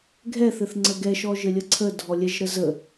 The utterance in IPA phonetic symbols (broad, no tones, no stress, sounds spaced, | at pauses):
ɡʱ ɛ θ ɘ θ ŋ͡ǀ ə ɡ ɛ ʃ ɔ ʒ ɘ lʲ ə ǀʰ ə dʱ ɔ lʲ ɛ ʒ ɾ ə z ə